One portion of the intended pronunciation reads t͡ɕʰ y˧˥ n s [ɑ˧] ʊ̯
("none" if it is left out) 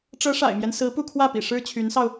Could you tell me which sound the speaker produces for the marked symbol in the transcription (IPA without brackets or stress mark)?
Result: ɑ˧